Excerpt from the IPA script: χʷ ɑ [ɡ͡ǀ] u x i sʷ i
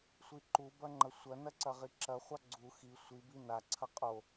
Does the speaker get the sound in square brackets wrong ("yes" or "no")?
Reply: no